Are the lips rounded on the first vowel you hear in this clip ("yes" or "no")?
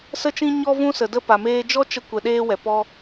no